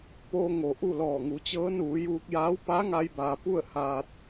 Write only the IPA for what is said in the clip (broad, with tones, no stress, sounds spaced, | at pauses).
p oː˧ ŋ o˩ ʔ u˥˨ l ɔː˧˩ ŋ u˩˧ t͡ɕ ɤː˧˥ n uː˩˧ j uː˧ k̚ j aː˧˥ w p a˧˥ ŋ a˧ j b aː˩ p u˥˨ ə̯ h aː˧ t̚